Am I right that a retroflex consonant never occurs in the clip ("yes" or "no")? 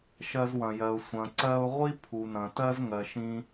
yes